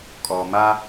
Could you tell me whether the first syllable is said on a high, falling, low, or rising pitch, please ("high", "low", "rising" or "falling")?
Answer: low